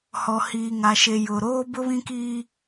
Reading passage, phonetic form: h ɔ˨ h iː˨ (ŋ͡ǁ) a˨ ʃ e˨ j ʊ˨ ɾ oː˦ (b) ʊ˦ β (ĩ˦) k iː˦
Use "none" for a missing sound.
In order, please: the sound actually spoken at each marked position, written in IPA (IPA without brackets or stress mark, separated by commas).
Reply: ŋ, b, ĩ˦